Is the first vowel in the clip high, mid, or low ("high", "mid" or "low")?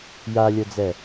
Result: low